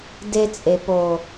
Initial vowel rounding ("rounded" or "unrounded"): unrounded